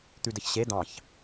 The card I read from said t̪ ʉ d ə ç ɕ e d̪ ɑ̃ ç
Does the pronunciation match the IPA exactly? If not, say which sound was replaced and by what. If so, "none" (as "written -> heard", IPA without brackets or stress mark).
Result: none